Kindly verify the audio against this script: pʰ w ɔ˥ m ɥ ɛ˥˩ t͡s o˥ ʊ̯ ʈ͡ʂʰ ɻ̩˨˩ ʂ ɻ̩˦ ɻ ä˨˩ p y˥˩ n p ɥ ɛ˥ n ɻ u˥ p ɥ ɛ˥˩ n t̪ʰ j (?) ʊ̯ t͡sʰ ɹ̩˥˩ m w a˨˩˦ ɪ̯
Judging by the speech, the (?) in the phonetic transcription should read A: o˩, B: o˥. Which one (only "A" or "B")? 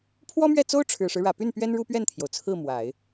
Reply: A